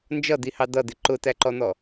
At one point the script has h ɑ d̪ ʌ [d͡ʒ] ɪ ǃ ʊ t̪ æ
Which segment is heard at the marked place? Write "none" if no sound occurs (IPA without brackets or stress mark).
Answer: d̪